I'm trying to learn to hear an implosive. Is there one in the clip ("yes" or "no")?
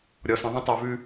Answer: no